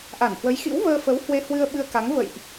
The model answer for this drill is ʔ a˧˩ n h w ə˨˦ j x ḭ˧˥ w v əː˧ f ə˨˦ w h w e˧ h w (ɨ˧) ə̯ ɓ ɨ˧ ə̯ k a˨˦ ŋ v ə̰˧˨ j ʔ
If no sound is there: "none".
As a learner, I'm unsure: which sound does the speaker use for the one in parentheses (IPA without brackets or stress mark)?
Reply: ɨ˧